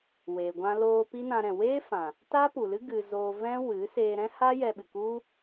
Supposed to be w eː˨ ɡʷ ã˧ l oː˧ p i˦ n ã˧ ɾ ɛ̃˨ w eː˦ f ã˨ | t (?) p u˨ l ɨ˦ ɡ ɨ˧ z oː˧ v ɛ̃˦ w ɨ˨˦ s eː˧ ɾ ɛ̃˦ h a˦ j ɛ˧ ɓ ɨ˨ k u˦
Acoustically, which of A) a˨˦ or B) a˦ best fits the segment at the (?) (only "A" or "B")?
B